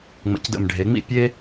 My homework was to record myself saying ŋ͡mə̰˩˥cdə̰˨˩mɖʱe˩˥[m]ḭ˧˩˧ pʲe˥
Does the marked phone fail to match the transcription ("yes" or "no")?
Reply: yes